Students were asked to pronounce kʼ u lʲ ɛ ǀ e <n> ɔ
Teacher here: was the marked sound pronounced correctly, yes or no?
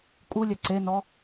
yes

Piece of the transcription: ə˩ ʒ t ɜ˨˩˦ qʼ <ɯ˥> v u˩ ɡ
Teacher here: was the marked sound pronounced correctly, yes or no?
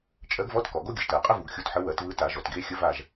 no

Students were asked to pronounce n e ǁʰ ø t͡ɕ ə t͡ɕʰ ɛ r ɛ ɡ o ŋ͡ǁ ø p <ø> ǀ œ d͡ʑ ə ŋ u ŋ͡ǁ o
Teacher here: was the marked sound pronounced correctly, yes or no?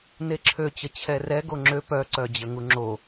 no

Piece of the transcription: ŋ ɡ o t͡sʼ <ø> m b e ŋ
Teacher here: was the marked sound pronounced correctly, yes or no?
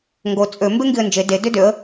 yes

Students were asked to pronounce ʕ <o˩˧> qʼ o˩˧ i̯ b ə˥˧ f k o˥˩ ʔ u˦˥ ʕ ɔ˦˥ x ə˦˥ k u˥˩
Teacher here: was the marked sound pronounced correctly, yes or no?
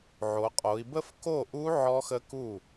yes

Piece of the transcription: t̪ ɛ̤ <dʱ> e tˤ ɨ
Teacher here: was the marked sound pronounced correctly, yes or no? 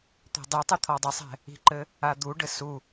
no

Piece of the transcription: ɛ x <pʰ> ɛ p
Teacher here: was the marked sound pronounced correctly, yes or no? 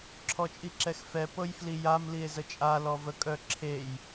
no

